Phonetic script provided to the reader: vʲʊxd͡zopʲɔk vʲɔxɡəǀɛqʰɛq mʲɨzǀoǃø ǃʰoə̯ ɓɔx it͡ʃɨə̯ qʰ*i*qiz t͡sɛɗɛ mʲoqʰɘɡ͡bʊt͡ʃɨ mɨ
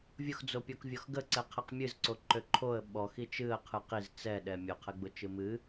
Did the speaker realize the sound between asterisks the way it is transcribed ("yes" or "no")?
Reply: no